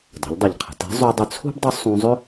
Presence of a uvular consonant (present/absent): present